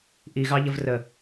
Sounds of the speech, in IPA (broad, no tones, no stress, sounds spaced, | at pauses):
ʔ i ɣ ɑ ʎ ə v r ə